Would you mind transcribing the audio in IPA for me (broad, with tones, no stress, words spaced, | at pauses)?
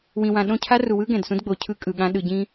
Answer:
wĩ˨wã˨ ɗõ˦˨cʰa˦ru˨wɯ˦ ɡɛ̃˨dsũ˦dɡ͡bo˨ cʰɯ˦kʼɯ˨ɠã˦ ɗɯ˨ɟĩ˦